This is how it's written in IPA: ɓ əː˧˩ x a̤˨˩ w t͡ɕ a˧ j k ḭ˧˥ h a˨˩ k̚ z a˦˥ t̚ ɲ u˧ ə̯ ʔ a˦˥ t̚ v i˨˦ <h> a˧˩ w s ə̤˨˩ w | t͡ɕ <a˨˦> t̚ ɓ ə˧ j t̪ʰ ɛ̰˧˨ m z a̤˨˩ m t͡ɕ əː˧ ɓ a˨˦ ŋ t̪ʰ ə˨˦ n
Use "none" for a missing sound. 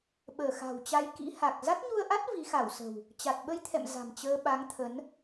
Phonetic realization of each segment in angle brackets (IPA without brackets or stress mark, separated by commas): x, a˨˩